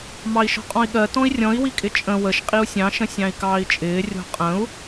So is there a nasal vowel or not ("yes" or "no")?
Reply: yes